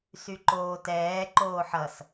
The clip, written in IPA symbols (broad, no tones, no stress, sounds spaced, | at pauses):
s y ǃ oː t ɛː ǃ oː ħ ʌ s